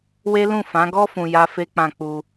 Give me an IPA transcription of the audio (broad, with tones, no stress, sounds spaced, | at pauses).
w e˦ l ũ˦˨ f ã˨˦ ɡ ɔ˦ f ũ˧ j a˦ f e˦ k͡p ã˦˨ k͡p u˧